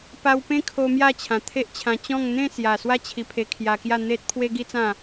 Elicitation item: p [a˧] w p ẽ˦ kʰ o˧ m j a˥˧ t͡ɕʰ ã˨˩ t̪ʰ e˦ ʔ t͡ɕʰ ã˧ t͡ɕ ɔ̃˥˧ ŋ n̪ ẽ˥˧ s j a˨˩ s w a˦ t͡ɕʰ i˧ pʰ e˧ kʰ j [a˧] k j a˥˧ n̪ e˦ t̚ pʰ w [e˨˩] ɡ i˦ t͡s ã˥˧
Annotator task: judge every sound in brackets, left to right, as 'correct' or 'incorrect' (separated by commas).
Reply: correct, correct, incorrect